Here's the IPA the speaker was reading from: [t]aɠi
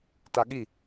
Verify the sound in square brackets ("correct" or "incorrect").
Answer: correct